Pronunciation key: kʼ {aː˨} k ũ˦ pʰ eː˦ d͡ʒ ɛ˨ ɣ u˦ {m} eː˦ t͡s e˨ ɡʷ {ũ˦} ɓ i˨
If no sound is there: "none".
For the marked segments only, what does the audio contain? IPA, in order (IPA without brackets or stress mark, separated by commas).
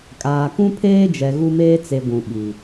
aː˨, m, ũ˨